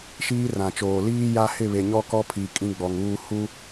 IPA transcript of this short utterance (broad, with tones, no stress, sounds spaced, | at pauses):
ʃ iː˦ r ã˨ t͡ʃ oː˨ l iː˦ j a˦ h ɪ˦˨ β e˨ ɲ ɔ˦ k ɔ˦ pʰ i˨ kʼ ĩ˦ ɡ͡b ɔ˨ ŋ uː˦ h u˦